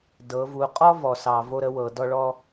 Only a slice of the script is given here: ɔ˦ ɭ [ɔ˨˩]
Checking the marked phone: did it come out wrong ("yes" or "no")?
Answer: yes